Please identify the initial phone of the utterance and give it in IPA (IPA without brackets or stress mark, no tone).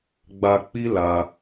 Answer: ɡ͡b